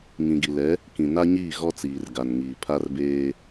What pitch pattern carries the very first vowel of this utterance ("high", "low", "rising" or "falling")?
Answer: low